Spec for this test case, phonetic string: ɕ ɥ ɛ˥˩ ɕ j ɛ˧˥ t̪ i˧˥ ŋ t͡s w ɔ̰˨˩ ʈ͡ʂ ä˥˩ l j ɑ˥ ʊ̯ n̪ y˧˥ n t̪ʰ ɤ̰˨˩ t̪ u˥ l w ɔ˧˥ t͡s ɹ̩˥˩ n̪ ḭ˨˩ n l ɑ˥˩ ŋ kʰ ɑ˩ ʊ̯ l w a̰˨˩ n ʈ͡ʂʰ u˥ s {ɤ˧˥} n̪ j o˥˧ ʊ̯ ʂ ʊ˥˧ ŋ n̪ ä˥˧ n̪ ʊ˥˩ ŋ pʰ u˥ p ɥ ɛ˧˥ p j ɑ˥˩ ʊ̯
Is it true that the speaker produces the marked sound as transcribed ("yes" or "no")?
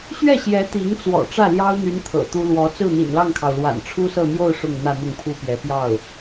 no